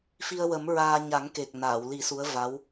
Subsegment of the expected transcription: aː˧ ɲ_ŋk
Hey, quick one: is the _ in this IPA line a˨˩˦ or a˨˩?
a˨˩˦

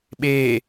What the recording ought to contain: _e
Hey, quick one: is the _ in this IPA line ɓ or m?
ɓ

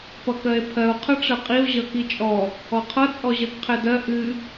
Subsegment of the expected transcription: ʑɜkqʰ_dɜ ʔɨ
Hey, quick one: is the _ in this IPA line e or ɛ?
ɛ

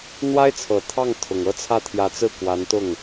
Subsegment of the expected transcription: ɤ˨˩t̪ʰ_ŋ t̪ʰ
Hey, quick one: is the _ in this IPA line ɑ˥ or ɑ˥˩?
ɑ˥˩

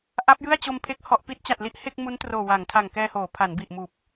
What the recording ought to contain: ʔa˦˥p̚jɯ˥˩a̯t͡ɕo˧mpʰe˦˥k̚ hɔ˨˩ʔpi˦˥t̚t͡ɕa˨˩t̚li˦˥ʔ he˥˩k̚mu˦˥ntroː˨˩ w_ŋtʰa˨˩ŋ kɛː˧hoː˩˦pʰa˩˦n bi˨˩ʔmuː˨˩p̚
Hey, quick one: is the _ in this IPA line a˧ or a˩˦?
a˩˦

